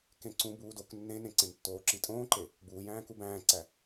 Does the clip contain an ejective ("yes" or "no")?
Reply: yes